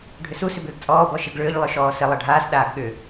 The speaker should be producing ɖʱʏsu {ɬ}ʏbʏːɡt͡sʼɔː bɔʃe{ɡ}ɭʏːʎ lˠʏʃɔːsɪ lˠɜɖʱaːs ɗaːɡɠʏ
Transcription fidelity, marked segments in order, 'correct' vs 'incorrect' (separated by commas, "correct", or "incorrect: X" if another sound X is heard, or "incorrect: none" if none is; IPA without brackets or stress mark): incorrect: s, correct